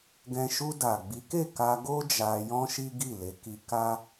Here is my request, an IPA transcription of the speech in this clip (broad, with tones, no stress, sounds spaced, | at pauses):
ɡ ɛ̃˧ ʃ u˧ d a˨ ɡ͡b i˨˦ k e˦˨ k a˧ ɡ o˦ d͡ʒ a˧ j ɔ̃˦ ʃ i˦ ɡ i˦˨ l e˨˦ k i˧ k a˦